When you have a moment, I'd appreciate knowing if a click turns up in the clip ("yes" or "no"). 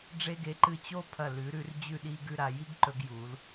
yes